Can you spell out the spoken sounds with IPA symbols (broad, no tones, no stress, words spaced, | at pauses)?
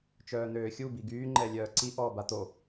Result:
t͡ʃœːn̪øːxʲu biɡyː ŋ͡ǃɛlʲœːǀi ʔɔːbat̪o